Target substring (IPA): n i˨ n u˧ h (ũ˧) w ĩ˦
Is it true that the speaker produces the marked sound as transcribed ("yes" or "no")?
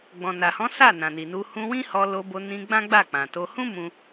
yes